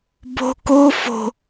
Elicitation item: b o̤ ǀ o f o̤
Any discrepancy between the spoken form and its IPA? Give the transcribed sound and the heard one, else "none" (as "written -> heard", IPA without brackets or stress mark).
ǀ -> k